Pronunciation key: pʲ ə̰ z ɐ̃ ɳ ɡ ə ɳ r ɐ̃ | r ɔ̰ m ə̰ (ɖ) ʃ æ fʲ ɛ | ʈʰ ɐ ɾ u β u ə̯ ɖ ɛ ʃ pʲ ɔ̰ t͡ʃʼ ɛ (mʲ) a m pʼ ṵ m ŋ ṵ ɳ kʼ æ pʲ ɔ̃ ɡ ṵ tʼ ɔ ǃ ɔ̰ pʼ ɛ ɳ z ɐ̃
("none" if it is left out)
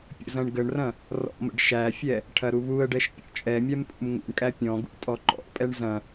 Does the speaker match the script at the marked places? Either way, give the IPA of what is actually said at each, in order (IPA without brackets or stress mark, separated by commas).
ɖ, mʲ